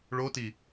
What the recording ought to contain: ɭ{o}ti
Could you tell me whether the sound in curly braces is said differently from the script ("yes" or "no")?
no